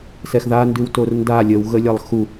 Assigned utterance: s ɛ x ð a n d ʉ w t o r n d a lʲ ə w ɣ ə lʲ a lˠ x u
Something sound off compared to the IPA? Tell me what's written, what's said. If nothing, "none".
none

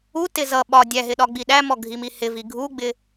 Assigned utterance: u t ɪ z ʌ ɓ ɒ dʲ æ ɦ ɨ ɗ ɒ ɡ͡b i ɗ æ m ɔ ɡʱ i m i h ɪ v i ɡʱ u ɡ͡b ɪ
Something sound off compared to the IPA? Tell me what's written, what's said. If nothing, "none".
ɨ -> ɪ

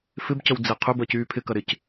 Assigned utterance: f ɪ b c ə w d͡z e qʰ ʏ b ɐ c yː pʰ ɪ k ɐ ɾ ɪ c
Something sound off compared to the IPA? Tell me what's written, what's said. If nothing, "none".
none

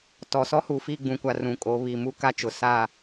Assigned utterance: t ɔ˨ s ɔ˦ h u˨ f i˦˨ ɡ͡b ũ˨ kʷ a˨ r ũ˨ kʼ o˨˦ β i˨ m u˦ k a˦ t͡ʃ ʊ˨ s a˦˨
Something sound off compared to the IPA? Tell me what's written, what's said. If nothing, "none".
none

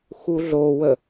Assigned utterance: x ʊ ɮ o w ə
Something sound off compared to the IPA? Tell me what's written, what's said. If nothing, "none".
ʊ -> u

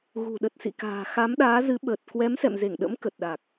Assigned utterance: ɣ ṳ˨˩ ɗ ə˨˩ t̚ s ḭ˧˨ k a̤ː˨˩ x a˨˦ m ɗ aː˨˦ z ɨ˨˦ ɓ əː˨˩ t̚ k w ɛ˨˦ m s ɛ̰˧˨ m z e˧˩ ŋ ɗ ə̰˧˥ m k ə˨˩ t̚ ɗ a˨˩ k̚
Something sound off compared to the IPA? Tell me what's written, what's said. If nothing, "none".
none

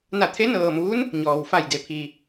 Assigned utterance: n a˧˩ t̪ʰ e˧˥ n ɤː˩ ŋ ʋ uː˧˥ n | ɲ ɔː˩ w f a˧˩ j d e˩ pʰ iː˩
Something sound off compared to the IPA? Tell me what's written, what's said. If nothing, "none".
ŋ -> m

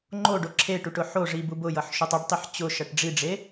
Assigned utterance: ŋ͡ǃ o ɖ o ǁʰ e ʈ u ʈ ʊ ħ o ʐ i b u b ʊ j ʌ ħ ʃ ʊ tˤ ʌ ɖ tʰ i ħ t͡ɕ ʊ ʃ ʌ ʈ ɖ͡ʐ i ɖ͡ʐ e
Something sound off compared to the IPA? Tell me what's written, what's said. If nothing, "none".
tʰ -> tˤ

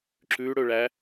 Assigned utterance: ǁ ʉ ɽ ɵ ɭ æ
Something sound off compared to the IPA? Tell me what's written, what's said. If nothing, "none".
none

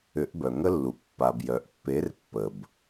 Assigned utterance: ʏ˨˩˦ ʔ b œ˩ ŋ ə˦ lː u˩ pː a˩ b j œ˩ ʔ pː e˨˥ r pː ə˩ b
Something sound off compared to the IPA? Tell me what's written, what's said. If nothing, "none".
none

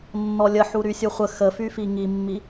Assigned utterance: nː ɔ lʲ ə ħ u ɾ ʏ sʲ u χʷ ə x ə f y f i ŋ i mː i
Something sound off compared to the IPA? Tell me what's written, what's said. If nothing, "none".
ʏ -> y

